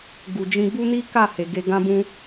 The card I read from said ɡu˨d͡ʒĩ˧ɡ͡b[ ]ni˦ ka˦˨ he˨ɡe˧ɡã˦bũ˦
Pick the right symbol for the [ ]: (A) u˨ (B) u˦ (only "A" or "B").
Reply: B